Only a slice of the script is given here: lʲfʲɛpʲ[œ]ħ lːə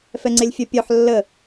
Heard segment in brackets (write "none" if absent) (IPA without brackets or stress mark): œ